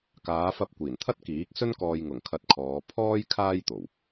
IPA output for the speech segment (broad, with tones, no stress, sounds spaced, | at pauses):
k aː˨˧ f ɐ˧ p̚ kʷ iː˨˩ n t̪ʰ ɐ˥ t̚ k iː˨˥ k̚ s ɵ˥ n k ɔː˧ j ŋ ʊ˨˩ ŋ kʰ ɐ˧ t̚ kʰ ɔː˨˧ pʰ ɔː˥ j kʰ aː˥ j t̪ o˨˩ w